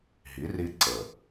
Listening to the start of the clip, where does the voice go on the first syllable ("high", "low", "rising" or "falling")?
rising